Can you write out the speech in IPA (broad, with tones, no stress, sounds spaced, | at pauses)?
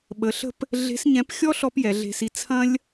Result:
ɓ ə˩˧ ɬ ə̤˥ p | ɮ e̤˧˥ s ɲ ɛ̃˧˥ p xʲ ɔ˥ ɬ ɔ˥ p j ɛ˩˧ ɮ e̤˧ s i˧ t͡sʰ ɐ̃˥ lʲ